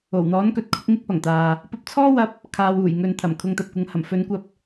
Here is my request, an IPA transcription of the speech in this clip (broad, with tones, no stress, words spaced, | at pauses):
o˨˩wn̪ɔː˨˥nkɵ˨t̚kʰʊ˧k̚ ŋɪ˥k̚pɐ˨˩ŋt̪aː˨ | pɐ˧p̚t͡sʰɔː˥wɐ˧p̚ | kʰaː˨w uː˨˩jŋɵ˨nt̪ʰɐ˨˩m kʰʊ˨˧ŋt̪ɐ˨p̚kʷɐ˨˥ŋhɐ˨˩m fɵ˨˧nkʷɐ˧p̚